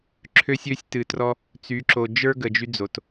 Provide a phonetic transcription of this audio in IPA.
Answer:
ǁʰø˦sʲø˦sʲ tɨ˨trɔ˦ | t͡sy˨˦ǁo˨ d͡ʒə˞˦ ɡə˨d͡ʒy˦d͡zo˨t

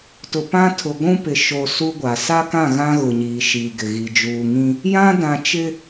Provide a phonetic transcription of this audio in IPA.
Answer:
tʊ˨pã˦tʰʊ˨ ɡʷũ˦pɪ˨ ʃo˨ su˦ɡʷa˨ sa˦kã˦˨ ɣã˦ ɣʊ˨ɲiː˨ ʃiː˨ɡɪ˨ɣi˨ d͡ʒuː˨ŋĩ˦ | jã˦dã˨ t͡ʃɪ˦

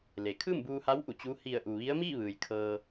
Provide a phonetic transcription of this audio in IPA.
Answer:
le˩kʰɯː˥˨mbuː˧ha˧˥w ʔu˩t͡ɕuː˧˥ hi˧˩ə̯ʔu˩ ʋi˧˥ə̯miː˥˨ʋɯː˩j kʰɤː˧

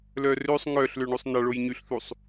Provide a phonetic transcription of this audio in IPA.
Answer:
lœrøsˤ ŋœɬ løɳusˤnɑ ɭojɲyɬθusˤ

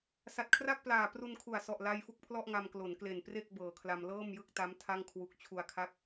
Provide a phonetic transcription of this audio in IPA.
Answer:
sa˨˩t̚kʰra˥˩k̚ plaː˨˩ pru˧nkʰu˨˩a̯sɔ˨˩ʔ la˧j fu˦˥k̚pʰlɔ˥˩ʔŋa˧m klo˩˦nkle˨˩npre˥˩k̚ bɤː˨˩kʰla˧m lɤː˥˩mjɯ˥˩k̚ta˦˥m tʰa˥˩ŋkʰwu˦˥k̚ t͡ɕʰu˧a̯kʰa˦˥k̚

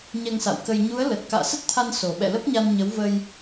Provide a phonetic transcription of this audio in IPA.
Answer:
ɲɛ˧ŋsa̰˧˨wkə˧j ɲu˨˦ə̯ lə˨˩t̚ ka̰ː˧˨sə˦˥t̚t̪ʰa˧n so˨˩ ɓɛ̰˧˨lə˦˥p̚ɲa˧nɲə˨˦w və˧j

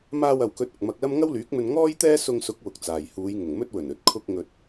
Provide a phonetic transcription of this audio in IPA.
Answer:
maː˧wɐ˨wkɵ˨˥t̚ ʊ˨k̚mɐ˧k̚lɐ˥m ŋɐ˥wlyː˨˥k̚mɵ˧n ŋɔː˥jt̪ɛː˥ sʊ˧ŋsʊ˨˥k̚ wʊ˨k̚t͡saː˨j huː˨˧jŋʊ˨˩ŋmɵ˥t̚wɵ˨˩n ɵ˨t̚kʰʊ˧k̚ ŋɵ˨t̚

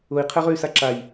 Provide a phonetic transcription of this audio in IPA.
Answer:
ʊi̯qʰɛʁøy̯sa ǁaj

